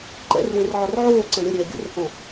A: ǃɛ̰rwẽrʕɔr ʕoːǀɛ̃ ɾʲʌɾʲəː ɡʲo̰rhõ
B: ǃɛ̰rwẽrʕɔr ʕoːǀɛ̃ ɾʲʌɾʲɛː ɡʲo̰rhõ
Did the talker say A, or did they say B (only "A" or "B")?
B